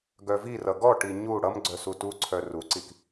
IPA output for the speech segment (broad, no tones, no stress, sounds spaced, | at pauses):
ɡ œ v i r ʌ ɡ ɔ ʈ i ɲ u ɽ ʌ m ɡ͡ǀ œ s u t u ǀʰ œ r u ǀ i k